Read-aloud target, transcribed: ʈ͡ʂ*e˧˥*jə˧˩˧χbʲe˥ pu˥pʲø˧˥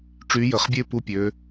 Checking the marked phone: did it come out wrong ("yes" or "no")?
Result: yes